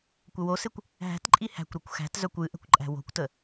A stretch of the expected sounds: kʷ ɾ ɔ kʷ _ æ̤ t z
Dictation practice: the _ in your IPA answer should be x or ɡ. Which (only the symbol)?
x